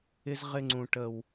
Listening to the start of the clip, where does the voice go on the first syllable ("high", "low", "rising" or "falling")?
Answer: high